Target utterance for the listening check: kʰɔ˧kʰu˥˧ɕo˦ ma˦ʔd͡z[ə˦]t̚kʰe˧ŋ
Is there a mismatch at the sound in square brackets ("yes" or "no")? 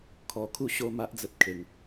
no